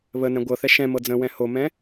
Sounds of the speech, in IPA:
βənɛ̃ ɡʷɤθɛ ʃɛ̃mɤ d͡zə̃wɛ̃ homɛ̃

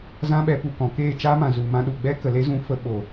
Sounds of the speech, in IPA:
zã˦ɓɛ˧pu˧kɔ̃˨ keː˦˨t͡ʃaː˦mã˨ zu˨mã˧ ɗu˨ɡ͡bɛ˦kə˨le˦ zũ˧fə˧ɓo˨

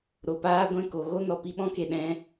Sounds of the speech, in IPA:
ɾo˨ paː˦ɡʷɛ̃˦˨ko˨ ɣo˦nɔ˨pi˧ɓɔ̃˦ ke˨ɗɛ̃˧

